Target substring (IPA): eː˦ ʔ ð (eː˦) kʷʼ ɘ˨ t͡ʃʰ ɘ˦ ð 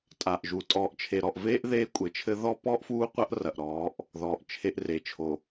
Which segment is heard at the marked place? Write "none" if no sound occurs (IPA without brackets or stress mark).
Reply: eː˦